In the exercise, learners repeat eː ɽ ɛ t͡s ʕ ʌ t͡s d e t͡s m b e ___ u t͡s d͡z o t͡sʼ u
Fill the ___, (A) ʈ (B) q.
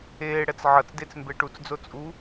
A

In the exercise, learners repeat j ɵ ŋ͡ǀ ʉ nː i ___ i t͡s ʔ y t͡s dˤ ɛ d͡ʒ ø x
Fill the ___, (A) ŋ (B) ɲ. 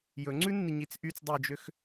B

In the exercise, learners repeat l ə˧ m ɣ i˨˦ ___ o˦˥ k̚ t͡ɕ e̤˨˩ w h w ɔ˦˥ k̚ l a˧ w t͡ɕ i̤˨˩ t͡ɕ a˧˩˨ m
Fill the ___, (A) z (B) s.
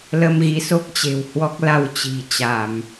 B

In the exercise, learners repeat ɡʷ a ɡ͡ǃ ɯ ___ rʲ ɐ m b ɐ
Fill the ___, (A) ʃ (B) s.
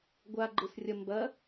B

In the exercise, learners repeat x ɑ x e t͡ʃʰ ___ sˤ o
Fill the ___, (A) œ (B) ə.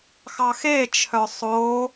A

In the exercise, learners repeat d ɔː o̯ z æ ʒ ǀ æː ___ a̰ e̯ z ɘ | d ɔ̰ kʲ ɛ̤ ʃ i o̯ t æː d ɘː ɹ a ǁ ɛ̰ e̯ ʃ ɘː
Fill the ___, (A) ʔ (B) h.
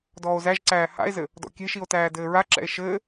B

